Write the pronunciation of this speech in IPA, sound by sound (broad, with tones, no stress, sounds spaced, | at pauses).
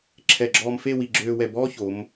ǁʰ ɛ˧˩ ɡ͡ǁ ɔː˧ m f e˥˧ w i˧˩ ɡ͡ǁ øː˧ w ɛ˧˩ b ɔː˥ ç o˩˧ m